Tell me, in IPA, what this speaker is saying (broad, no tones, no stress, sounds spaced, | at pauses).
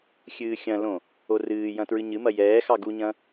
xʲ ɨː xʲ ɐ̃ l õ | o r ɨː j ɐ̃ t ɹ ɨ ɲ ɨ m ɐ j ɛː x ɑ ɡ u ɲ ɐ̃